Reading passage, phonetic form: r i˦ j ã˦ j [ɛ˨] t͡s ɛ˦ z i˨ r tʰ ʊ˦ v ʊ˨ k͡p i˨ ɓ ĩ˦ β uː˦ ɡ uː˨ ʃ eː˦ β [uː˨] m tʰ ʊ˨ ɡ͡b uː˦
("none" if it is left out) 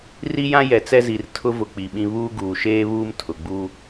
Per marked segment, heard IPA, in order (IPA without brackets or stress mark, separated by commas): ɛ˨, uː˦